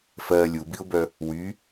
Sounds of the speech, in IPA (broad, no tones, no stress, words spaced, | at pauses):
fɜ lʲubiʊ̯bœ | wy